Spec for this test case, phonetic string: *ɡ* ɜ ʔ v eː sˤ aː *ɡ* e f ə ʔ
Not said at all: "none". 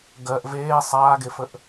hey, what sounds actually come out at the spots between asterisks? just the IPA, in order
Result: ɡ, ɡ

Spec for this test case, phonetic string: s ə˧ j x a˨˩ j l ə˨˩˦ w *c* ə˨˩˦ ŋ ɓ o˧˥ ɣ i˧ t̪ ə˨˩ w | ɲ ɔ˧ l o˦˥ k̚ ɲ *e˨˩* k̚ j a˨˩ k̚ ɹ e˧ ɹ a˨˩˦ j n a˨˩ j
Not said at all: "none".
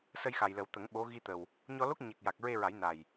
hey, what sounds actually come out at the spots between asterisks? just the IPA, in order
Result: t̪, e˨˩

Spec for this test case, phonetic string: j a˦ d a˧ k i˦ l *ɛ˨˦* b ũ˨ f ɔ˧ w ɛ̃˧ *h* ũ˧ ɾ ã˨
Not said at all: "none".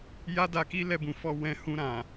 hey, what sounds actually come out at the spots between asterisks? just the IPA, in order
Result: ɛ˧, h

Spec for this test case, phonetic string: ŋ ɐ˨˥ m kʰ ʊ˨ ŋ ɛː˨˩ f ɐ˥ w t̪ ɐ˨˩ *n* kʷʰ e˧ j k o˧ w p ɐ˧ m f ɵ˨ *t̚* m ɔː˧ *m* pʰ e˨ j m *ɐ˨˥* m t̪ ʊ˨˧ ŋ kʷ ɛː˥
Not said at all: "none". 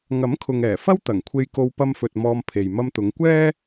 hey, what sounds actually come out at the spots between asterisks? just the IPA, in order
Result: ŋ, t̚, m, ɐ˧

